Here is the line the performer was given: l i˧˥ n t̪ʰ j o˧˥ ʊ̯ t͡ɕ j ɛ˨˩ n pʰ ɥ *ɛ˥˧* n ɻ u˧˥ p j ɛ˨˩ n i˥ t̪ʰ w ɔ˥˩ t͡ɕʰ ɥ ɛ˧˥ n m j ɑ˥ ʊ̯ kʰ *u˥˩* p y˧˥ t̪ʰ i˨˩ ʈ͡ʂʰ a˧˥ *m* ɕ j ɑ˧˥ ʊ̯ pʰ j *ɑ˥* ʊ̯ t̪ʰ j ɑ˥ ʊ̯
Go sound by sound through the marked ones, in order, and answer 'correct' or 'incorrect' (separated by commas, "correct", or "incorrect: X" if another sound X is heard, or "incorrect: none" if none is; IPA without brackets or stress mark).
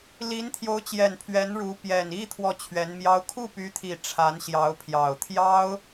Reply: incorrect: ɛ˧˥, correct, incorrect: n, incorrect: ɑ˨˩